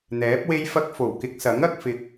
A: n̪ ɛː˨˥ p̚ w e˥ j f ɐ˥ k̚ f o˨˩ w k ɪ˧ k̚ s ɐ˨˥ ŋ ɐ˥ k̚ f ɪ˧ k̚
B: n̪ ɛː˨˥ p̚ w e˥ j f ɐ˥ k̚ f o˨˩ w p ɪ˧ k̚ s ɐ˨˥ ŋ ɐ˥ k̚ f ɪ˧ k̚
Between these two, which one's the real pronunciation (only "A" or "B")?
A